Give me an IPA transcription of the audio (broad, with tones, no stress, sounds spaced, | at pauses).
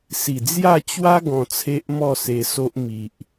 s i˨˩ d͡z j a˥˧ t͡ɕ w a˦ ɡ ɔ̃˧ t͡sʰ e˦ ʔ m ɔ˥˧ s e˧ s o˦ ʔ m i˨ ʔ